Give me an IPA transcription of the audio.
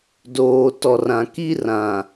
d oː˨ t ɔ˨ r ã˨ k i˦ r ã˨

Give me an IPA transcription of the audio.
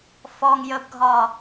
f ɔ ŋ j ə b ɡʱ ɒ

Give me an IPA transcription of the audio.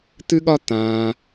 t̪ ɨ˦ ɠ ɒ˦ t̪ ãː˧

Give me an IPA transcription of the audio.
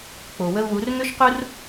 k͡p o˩ w ə˧ u̯ w u˩˧ r ŋ ø˥ ʃ q u˥ r

